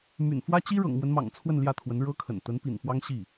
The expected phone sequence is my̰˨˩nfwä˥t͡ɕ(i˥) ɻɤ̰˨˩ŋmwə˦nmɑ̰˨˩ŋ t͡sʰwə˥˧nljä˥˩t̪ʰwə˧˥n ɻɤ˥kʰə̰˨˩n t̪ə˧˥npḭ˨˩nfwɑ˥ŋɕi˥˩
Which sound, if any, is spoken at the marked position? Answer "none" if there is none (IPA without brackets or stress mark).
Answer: i˥